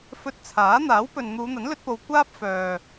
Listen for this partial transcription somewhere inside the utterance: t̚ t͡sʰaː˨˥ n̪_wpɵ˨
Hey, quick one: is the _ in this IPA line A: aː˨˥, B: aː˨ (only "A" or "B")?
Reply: A